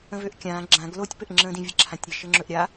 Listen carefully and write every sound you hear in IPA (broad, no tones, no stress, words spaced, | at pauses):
ə̃vøʔkʲãː ɡ͡ǁãɡ lotʲpɘʔŋ͡ǁə̃ːdĩ vʲəǁʰãtʲɾʲɘ ʃɘŋ͡ǁɵʔɾʲa